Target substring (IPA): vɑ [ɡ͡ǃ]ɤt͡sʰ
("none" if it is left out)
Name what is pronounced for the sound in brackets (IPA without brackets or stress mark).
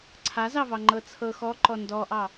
ŋ͡ǃ